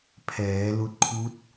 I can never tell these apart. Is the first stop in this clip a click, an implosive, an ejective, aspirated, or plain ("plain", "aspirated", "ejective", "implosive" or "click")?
aspirated